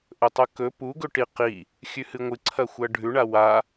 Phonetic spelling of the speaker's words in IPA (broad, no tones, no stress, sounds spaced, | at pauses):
ʔ ɵ tˤ ɵ k ɵ p u ɡ ɵ ʈ i q i | xʲ ʉ h ɨ ŋʷ ɨ ǀʰ ɐ xʷ ɐ ɖʱ ʉ ɳ a w a